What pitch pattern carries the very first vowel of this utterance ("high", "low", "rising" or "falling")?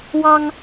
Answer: high